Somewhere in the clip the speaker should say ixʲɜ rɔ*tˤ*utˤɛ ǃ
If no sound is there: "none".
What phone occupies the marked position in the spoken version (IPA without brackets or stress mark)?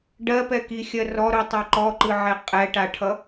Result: ɾ